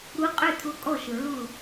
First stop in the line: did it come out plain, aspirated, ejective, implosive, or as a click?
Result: ejective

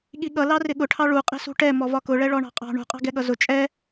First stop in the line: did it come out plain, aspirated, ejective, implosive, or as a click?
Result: implosive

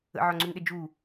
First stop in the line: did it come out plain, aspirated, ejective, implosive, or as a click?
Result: click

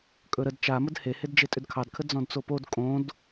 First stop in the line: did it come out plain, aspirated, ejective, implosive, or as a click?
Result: ejective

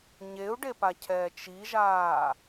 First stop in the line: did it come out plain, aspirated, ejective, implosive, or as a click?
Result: plain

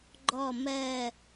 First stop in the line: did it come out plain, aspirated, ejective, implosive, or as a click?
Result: click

